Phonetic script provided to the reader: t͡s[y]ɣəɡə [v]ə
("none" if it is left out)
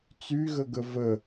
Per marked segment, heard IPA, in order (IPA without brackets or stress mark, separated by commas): y, v